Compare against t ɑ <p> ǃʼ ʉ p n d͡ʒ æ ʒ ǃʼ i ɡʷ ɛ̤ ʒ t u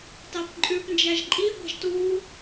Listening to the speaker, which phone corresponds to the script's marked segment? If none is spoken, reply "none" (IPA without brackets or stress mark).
p